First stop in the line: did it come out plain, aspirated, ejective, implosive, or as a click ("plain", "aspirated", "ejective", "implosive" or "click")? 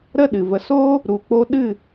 implosive